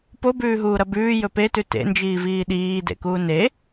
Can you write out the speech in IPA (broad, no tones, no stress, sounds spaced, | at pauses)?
p o b ʉː ɦ uː ɾ ɐ b ʉː j ɵ p e t ʉ t ḛ n d͡ʒ iː v iː ɗ iː d ḛ k uː n e